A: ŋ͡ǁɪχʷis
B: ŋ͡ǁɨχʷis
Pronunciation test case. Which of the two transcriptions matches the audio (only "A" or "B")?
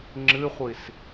B